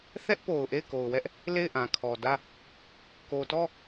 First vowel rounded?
no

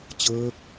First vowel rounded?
no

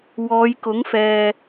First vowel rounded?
yes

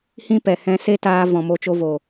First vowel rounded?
no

